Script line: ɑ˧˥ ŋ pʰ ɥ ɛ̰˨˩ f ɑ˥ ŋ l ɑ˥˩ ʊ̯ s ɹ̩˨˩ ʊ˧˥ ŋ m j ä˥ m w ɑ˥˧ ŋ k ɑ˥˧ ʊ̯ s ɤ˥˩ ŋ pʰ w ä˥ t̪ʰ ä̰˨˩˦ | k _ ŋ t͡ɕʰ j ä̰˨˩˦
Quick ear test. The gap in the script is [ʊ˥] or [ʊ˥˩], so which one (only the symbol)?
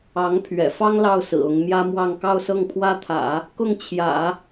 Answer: ʊ˥˩